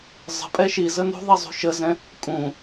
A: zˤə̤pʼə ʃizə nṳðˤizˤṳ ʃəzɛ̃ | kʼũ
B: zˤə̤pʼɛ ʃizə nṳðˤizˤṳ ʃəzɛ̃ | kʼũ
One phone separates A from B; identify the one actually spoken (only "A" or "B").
B